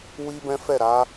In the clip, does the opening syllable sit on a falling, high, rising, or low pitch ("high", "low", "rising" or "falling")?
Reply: high